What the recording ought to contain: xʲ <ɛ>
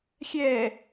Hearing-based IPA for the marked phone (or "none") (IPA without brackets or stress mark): ɛː